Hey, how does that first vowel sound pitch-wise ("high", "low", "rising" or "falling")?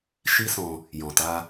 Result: high